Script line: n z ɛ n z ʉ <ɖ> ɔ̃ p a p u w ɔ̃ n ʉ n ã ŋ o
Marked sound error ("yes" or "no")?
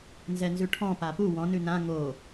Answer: yes